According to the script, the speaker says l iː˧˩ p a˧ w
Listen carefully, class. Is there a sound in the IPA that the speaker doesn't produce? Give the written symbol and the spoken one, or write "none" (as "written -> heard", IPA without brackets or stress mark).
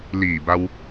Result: p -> b